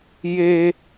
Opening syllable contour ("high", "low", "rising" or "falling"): high